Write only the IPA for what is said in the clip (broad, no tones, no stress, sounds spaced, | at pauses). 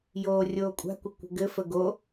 j oː rʲ oː kʷʼ a̤ kʷ ə kʷ ə̤ ɡ ɘ f ə ɡ o